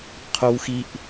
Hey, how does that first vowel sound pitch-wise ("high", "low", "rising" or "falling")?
high